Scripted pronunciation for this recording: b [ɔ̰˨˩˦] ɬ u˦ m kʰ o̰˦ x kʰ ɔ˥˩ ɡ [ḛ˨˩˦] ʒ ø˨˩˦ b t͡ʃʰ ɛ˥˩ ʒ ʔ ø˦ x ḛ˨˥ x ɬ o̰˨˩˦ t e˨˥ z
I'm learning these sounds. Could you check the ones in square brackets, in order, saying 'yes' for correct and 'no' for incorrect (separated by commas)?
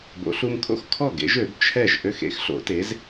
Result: no, no